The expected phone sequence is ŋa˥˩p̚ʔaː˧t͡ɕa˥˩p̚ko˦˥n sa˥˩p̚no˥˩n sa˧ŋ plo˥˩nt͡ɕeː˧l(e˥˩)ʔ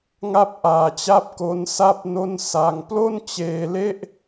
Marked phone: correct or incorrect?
correct